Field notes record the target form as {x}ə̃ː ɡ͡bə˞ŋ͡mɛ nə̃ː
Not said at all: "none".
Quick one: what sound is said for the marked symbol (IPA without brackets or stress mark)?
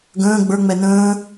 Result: ɡ